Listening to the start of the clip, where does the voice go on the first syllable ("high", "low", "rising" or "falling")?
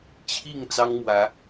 falling